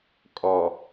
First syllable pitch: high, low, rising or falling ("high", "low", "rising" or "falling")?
low